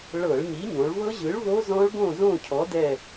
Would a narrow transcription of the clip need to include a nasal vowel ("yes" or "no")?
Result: yes